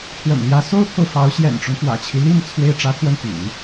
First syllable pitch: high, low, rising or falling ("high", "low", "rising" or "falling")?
low